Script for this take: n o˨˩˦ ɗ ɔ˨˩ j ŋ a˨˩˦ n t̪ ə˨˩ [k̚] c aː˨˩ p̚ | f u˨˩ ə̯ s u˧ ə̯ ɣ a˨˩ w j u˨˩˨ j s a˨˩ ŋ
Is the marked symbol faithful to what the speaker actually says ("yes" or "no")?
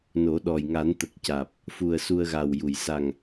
yes